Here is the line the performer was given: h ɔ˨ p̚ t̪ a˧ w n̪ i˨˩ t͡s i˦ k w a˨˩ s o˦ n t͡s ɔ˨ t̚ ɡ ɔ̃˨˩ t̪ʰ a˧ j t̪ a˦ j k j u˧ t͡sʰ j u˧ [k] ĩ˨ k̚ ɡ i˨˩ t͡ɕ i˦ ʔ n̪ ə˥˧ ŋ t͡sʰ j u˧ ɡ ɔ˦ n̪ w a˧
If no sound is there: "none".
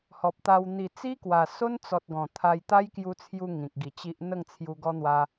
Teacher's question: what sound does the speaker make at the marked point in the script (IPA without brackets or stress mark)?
ŋ